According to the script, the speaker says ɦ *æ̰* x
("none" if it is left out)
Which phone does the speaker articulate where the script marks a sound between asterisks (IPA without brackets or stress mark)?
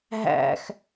æ̰